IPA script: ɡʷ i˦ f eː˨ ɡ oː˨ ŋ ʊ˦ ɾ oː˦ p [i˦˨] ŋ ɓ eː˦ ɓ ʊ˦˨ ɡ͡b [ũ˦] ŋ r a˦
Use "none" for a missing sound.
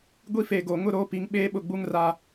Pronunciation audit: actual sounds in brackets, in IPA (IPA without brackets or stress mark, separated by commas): i˨˦, u˦